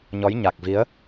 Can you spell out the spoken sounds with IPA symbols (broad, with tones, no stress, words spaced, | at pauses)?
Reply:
ɲɔ˨˦jɲa˨˩k̚vi˨˦ə̯